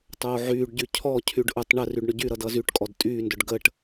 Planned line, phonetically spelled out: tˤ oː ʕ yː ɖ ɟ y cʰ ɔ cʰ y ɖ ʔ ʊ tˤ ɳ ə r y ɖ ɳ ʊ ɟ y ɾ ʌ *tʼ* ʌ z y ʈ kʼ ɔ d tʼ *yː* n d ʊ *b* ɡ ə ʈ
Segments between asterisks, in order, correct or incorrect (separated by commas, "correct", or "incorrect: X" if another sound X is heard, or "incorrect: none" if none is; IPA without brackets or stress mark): incorrect: d, correct, incorrect: ɖ